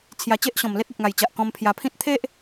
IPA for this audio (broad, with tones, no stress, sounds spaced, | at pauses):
t͡sʰ j a˧ t͡ɕ e˦ ʔ ɕ ɔ̃˨˩ m l e˦ t̚ e˨ p̚ ŋ a˨˩ j t͡ɕ a˨ ʔ k ɔ̃˧ m pʰ j a˧ pʰ ĩ˦ t̚ t̪ʰ e˦ ʔ